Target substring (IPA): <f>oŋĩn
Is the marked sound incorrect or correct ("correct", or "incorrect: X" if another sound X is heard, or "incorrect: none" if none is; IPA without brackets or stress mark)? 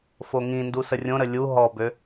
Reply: correct